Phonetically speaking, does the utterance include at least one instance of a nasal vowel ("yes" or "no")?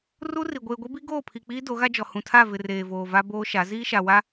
yes